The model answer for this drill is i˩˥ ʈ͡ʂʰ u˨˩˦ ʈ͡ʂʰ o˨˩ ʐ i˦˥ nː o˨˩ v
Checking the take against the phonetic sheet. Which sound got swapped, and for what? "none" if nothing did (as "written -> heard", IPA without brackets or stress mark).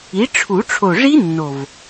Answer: none